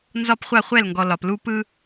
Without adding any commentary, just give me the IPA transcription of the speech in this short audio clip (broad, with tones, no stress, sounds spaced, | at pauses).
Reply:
n z ɒ˦ p χʷ a˦˨ χʷ ɛ˦˨ l ŋ ɡ ɔ˨ l ɒ˨ p l u˦ p ɯ˦